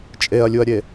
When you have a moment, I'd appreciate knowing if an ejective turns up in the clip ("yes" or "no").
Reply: yes